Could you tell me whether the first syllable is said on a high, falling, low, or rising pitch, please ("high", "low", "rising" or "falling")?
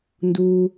low